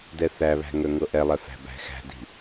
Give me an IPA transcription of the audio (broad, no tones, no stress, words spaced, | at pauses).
dɛθæβæ̤ ŋœŋɤʔɛlˠɛ fæ̤bæ̤xæ̤di̤